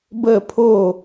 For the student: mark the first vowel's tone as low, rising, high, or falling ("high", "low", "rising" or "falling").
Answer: falling